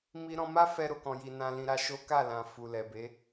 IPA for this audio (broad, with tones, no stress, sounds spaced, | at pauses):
m i˧ ɾ ɔ̃˧ m a˦ f ɛ˧ ɾ o˨ k ɔ̃˨ j i˨ n ã˧ l ĩ˧ ɾ a˧ ʃ o˦ k a˦˨ l ã˨ f u˨ l ɛ˨ b e˨˦